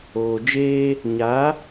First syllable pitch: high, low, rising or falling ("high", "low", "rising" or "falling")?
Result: low